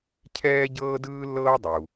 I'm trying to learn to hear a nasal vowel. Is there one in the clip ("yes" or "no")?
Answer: no